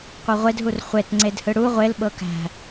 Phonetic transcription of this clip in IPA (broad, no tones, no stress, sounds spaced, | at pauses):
qʷ ɤ ʁʷ e d ɦ u r χʷ e t ŋ͡ǀ e d h ɯ ɽ u ʁʷ e l ɓ ɤ k æ̤